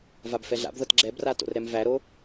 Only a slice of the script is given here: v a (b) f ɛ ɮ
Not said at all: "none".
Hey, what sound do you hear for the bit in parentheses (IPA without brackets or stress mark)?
b